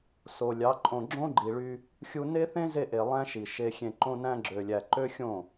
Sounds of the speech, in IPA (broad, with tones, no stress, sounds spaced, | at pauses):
s o˨ lʲ ɑ˨˦ ǃʼ õ˨ ɡ͡ǁ õ˦ ɡ͡ǃ i˨ ɭ y˧ | xʲ u˧ n e˦ θ ẽ˦ z e˧ ʔ e˨ lˠ æ̃˦ ʃ i˨ ʃ e˧ xʲ ẽ˧ ǃ õ˧ n æ̃˧ ɡ͡ǁ ø˨ lʲ æ˨ ǃ ø˦ xʲ õ˦˨